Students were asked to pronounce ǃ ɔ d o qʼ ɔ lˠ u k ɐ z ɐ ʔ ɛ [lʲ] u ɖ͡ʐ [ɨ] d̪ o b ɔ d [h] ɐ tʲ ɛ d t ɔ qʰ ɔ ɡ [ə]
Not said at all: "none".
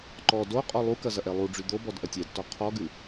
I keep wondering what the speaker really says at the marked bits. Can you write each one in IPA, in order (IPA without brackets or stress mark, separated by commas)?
lˠ, y, ʔ, ɨ